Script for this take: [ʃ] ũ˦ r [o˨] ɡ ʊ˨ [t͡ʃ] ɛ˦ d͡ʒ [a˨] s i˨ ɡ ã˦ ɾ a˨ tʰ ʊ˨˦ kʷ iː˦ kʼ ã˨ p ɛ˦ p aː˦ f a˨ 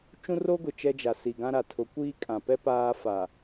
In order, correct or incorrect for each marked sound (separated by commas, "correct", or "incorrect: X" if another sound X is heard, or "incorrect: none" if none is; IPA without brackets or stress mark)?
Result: incorrect: t͡ʃ, incorrect: o˦, correct, correct